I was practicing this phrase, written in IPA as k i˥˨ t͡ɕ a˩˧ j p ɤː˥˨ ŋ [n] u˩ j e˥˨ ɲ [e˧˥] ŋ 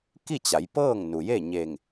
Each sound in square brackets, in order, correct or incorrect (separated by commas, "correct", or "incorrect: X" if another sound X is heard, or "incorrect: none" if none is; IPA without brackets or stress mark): correct, incorrect: e˧˩